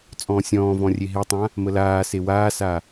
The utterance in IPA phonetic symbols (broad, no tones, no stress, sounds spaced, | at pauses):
t͡sʼ ɔ̃ː sʲ ɔ̃ː v ɔ̃ rʲ e ɦ e tˤ ã | m ə l aː s e w aː s a